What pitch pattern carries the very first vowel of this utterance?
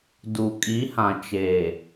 low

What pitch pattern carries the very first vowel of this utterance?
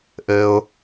low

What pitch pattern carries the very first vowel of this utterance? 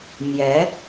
rising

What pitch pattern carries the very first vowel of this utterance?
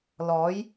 rising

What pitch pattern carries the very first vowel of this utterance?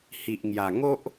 low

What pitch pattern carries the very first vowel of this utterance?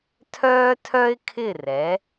high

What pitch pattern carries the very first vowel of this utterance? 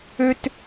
high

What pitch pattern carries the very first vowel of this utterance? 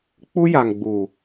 high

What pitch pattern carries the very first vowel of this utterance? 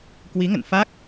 rising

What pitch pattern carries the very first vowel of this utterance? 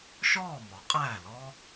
falling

